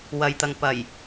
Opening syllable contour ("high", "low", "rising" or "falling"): low